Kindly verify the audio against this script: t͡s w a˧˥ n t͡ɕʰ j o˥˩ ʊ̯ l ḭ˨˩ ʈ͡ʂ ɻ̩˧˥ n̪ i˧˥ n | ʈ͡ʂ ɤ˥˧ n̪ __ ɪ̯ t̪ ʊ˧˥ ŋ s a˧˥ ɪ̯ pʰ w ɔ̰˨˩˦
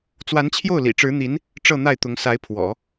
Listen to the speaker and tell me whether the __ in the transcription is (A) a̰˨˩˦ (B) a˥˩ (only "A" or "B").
B